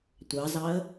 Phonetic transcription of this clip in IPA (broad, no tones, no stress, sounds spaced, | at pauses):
tʷ ɑ z ɑ ə̯